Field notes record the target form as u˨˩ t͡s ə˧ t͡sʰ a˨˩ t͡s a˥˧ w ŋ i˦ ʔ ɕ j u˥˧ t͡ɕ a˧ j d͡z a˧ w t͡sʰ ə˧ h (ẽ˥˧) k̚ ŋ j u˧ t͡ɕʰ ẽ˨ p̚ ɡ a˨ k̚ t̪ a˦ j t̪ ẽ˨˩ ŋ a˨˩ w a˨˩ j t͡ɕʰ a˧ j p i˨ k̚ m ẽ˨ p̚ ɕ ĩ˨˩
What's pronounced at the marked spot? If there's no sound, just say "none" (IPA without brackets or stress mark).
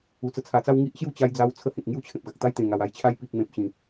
ẽ˨